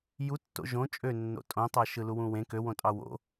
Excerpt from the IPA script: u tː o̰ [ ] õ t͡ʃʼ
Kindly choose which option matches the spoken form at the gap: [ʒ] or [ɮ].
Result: ʒ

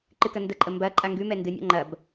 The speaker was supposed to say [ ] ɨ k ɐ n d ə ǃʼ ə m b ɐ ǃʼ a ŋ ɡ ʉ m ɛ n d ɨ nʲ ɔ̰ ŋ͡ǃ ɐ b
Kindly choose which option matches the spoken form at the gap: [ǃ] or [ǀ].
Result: ǃ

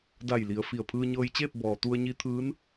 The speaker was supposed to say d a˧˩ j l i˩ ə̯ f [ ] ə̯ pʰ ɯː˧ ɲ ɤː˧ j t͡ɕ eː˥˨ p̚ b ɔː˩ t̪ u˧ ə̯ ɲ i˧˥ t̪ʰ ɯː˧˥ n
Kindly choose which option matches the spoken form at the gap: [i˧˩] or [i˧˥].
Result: i˧˩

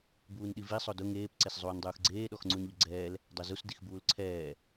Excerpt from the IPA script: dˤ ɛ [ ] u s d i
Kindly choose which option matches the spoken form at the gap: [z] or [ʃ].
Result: z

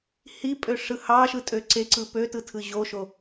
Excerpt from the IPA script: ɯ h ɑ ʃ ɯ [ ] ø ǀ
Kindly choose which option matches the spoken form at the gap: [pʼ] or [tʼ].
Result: tʼ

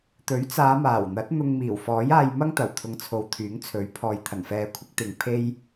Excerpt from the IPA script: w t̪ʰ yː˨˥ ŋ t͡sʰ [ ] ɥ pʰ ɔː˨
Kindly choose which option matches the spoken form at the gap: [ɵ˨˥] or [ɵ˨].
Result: ɵ˨˥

